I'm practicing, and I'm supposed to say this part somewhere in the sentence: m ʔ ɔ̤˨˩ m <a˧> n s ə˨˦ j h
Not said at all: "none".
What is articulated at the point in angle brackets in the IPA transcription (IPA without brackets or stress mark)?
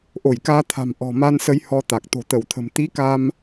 a˧